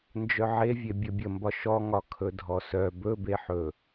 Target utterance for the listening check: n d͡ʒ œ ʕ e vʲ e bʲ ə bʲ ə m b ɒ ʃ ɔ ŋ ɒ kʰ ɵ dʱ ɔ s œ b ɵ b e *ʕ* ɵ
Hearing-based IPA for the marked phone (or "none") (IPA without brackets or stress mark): ħ